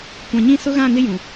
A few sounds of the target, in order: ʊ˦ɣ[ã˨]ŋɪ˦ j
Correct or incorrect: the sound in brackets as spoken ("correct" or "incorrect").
incorrect